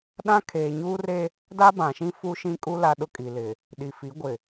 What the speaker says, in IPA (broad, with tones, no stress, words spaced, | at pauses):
ɗã˦kʰeː˨ɲuː˦re˦ | da˦bã˨ʃĩ˦ fu˦ʃĩ˦kʼu˦ la˦ɗʊ˦kʼi˨lɪ˨ | ɗi˨fi˨˦ɡʷɪ˨